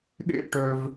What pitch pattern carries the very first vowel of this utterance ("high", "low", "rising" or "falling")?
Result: high